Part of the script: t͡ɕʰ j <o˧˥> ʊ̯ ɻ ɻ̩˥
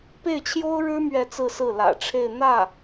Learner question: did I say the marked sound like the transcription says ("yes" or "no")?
no